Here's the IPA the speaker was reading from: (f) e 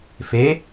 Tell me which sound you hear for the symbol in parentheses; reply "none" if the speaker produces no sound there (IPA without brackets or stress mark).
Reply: f